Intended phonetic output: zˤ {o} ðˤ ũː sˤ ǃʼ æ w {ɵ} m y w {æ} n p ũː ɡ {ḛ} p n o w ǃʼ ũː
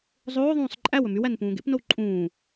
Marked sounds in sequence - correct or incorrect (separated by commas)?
incorrect, correct, correct, correct